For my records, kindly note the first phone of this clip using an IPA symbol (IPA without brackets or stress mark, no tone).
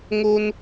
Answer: ŋ